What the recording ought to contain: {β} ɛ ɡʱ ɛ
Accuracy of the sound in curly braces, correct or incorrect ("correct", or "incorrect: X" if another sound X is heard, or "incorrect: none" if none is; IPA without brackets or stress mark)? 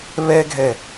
correct